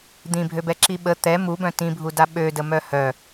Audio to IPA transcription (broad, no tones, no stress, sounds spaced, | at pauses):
d̪ ĩ bʱ ø b ɛ ǁ i ɓ ə t̪ ɛ m u b œ̃ t ĩ bʱ u d a ɓ ø d ə m œ h œ